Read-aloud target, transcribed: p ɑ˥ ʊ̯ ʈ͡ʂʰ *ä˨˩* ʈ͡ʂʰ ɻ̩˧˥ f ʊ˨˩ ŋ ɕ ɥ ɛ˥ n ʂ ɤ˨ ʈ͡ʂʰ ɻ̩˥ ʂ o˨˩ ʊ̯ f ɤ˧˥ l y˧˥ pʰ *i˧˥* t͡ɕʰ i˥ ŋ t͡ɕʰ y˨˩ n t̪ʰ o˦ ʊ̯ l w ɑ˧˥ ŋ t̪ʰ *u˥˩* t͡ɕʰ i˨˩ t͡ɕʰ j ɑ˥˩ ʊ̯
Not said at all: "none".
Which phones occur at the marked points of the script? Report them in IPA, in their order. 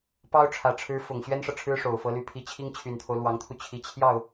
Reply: ä˨˩, i˧˥, u˧

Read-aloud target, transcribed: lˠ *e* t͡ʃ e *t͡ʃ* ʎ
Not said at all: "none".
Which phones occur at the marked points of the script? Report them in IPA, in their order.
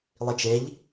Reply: i, none

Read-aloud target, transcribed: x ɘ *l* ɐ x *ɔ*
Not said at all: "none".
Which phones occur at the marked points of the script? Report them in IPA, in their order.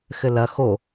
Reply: l, o

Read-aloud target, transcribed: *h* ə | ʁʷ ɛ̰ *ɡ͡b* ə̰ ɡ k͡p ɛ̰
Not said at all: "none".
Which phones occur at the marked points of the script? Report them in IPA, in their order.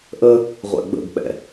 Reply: ʔ, ɡ͡b

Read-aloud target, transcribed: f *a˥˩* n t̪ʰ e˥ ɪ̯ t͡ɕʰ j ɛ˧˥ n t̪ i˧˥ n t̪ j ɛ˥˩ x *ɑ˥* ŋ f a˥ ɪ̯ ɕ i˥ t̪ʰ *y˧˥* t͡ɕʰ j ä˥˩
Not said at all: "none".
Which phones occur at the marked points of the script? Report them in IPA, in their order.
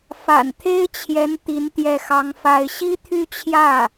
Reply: a̰˨˩, ɑ˥, y˥˧

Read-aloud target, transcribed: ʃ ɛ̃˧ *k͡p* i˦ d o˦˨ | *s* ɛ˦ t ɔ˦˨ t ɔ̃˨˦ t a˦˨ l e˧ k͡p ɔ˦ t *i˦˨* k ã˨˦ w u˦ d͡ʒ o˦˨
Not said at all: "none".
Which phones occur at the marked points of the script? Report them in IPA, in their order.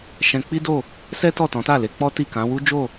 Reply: k͡p, s, i˦˨

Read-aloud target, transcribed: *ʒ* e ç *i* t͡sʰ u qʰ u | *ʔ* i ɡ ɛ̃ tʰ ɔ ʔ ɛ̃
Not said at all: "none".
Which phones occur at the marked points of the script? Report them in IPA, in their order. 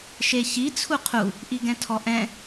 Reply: ʃ, i, ʔ

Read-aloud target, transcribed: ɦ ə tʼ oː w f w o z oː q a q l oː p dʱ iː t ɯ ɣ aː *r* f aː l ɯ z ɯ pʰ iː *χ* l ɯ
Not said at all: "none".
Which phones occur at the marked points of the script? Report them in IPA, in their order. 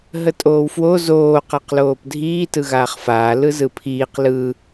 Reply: χ, q

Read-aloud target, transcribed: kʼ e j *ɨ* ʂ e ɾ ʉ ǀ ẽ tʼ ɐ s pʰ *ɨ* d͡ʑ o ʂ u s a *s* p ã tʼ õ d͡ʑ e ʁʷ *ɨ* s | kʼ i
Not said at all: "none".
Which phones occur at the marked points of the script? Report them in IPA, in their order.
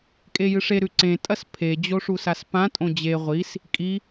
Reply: ɨ, e, s, i

